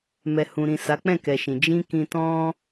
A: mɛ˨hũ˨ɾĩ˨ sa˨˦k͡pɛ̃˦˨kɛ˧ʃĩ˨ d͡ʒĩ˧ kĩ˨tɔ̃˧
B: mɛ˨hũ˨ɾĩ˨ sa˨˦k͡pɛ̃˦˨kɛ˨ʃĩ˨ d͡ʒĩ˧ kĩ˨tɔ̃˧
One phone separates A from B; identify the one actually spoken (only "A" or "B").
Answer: B